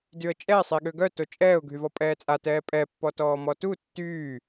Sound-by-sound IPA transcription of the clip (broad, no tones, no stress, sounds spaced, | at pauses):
d y ə̯ t͡ʃʼ ɛ sˤ e ɠ ø ɡ œ t o t͡ʃʼ ɛː ʊ̯ ɡʱ y v ɔ pʼ ɛː t͡sʼ a t ɛː pʼ ɛ pː ɔ t ɔː m ɔ t u tː yː